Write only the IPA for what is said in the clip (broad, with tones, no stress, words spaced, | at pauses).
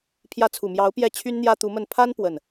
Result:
pʰjä˧˥t͡sʰu˨˩mjɑ˧˥ʊ̯ pjɛ˥˩ t͡ɕʰy˥nn̪jä˥t̪u˧˥mə˥˩n pʰa˥n pwə˥˩n